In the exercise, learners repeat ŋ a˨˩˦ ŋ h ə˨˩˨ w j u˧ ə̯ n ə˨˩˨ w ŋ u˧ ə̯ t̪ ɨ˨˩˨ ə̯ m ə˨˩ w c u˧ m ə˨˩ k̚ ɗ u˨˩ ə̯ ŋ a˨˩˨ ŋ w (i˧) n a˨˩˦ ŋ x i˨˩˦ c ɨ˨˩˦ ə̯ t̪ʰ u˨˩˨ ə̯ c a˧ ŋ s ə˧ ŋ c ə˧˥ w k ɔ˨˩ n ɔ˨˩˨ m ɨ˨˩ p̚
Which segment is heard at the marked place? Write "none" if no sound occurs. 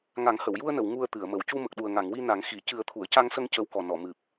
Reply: i˧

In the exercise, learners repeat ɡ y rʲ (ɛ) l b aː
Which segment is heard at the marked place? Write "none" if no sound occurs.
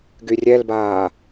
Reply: ɛ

